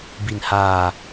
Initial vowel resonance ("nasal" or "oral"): oral